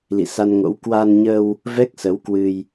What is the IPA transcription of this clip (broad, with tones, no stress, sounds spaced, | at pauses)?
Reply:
l ḭ˧˨ s a˧ n ŋ o̰˧˥ w k w a˧ n ɲ əː˧ w | v ɛ˦˥ k̚ s ə˨˦ w k w ɨ˧ j